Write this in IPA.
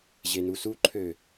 ʑ e n u s u ǃʰ ø

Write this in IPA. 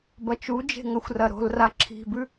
b ɐ t͡ʃ u d͡ʒ e̤ ŋ ɐ xʷ r ɐ ɾ o̤ l r a ǁʰ i̤ b ʉ

